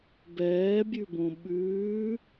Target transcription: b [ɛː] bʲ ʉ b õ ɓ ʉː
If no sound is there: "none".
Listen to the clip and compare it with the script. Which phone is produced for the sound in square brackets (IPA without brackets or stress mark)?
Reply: ɛː